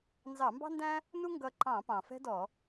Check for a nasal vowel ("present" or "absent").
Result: present